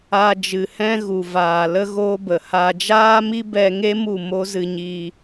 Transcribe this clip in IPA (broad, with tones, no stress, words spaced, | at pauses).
a˧d͡ʒɨ˨hɛ̃˦ ɣu˨ vaː˨lə˦ ɣoː˦bə˨ ha˧ d͡ʒaː˦mi˦bɛ˧ŋe˦ mu˦˨mo˦zɨ˧ɲi˧